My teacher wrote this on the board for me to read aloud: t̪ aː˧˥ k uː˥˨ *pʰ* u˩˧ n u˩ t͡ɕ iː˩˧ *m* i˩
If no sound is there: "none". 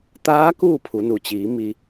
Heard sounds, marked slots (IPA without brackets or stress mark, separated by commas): pʰ, m